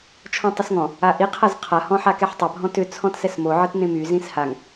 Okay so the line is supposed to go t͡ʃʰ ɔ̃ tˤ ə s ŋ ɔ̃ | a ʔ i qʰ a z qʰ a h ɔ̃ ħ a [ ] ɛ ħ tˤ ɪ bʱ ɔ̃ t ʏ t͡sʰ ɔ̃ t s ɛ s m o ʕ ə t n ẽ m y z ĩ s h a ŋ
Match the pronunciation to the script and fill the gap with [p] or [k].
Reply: k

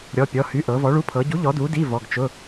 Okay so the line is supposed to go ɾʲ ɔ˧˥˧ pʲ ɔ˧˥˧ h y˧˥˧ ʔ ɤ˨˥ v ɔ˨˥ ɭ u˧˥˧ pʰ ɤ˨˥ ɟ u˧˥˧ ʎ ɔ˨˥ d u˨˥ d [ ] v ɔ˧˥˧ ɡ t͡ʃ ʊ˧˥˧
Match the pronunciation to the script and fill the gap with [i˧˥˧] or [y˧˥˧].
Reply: i˧˥˧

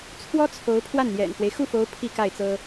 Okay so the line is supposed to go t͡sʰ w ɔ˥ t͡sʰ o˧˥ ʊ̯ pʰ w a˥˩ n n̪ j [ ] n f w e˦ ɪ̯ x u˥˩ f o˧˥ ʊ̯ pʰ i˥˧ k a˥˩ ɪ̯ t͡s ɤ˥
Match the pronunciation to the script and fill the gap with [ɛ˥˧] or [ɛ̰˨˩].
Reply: ɛ̰˨˩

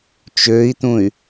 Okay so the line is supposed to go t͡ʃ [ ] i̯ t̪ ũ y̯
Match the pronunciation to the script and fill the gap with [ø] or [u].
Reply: ø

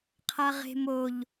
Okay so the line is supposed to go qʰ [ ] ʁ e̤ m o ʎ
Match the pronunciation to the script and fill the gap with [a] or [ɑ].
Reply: a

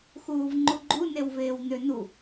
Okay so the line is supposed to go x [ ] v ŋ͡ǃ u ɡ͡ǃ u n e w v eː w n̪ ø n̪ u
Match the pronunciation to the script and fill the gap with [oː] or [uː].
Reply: uː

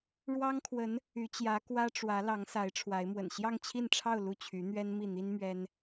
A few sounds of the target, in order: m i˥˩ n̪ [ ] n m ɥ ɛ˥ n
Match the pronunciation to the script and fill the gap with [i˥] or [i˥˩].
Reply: i˥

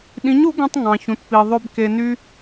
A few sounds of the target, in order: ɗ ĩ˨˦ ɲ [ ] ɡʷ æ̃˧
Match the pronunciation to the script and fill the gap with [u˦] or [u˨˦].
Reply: u˨˦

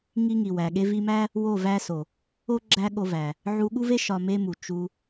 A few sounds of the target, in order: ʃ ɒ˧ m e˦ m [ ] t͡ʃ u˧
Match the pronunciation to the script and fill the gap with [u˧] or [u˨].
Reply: u˨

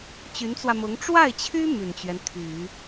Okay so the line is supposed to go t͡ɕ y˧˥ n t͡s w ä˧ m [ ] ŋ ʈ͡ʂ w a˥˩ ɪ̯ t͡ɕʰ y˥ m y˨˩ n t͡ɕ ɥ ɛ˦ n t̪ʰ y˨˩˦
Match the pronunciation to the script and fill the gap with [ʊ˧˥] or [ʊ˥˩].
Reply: ʊ˧˥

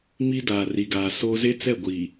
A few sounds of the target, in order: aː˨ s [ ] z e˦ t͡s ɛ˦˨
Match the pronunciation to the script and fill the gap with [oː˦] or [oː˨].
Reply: oː˦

